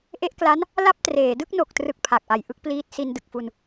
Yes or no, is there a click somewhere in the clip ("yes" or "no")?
no